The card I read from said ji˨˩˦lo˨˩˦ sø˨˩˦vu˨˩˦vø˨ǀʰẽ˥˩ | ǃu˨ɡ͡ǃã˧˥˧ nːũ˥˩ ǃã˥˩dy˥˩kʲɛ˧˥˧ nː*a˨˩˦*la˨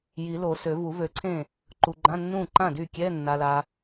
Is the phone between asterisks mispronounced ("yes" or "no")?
yes